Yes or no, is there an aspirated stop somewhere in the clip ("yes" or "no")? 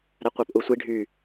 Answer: no